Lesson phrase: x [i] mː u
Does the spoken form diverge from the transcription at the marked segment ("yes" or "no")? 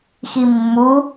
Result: no